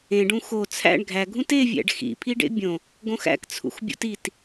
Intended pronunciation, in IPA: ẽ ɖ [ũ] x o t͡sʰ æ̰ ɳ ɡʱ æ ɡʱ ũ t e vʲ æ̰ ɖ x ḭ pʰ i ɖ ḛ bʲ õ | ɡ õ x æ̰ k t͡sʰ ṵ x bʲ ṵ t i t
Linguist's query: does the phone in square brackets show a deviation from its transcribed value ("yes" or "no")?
no